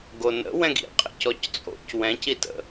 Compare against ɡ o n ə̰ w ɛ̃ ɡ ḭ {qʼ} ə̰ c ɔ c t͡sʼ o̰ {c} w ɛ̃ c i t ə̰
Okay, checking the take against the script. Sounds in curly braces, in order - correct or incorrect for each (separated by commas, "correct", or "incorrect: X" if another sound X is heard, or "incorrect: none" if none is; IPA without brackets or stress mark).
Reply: correct, correct